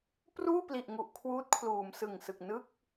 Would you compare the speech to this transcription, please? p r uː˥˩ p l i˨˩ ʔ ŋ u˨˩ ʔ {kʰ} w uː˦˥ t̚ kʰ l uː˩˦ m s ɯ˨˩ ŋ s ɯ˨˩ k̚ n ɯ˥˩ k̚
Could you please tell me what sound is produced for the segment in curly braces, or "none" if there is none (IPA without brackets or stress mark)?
kʰ